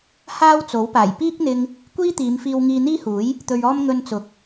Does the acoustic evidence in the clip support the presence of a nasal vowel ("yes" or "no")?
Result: no